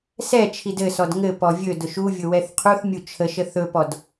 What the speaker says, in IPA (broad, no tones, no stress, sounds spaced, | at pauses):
s ɛ t͡ʃʰ i d ɘ s ɔ d ŋ ɘ p ɔ vʲ ɵ d ʊ ʃ u vʲ ʊ w ɛ θ qʰ u θ mʲ u t͡ʃʰ ə ʃ ə θ ɵ p ɔ d